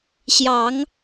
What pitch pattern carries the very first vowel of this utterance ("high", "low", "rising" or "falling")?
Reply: rising